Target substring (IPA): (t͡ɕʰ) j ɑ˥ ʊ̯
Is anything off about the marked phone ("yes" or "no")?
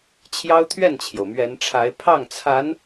no